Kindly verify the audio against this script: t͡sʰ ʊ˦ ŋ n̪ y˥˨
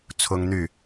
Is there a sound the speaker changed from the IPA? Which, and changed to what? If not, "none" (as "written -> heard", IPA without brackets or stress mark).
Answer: none